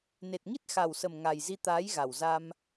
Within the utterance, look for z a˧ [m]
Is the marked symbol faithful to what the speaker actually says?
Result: yes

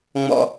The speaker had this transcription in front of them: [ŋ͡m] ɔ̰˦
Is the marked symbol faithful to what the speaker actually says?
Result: yes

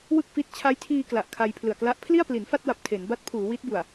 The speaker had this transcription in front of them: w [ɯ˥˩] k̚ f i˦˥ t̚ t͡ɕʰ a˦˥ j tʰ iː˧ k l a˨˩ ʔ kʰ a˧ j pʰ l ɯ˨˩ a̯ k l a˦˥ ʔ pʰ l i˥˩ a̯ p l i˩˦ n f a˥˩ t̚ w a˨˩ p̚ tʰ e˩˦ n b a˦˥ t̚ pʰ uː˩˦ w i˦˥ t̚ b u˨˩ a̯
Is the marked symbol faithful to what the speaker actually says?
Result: yes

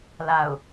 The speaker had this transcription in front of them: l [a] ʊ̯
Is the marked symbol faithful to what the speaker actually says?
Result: yes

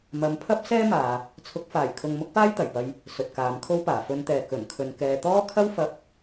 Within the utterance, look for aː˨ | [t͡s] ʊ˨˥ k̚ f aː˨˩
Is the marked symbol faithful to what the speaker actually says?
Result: no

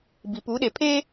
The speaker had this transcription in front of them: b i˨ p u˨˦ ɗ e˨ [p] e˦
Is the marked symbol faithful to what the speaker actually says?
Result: no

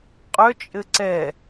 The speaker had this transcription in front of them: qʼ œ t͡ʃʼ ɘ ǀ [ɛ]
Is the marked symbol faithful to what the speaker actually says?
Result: yes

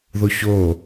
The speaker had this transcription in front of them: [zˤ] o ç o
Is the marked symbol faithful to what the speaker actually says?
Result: no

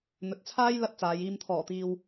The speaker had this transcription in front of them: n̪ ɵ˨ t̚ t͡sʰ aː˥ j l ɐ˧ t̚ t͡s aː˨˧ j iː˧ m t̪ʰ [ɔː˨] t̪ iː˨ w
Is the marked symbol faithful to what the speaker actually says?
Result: no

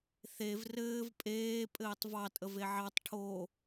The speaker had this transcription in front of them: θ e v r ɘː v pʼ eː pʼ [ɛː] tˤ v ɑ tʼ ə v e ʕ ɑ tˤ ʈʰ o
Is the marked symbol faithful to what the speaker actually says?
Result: no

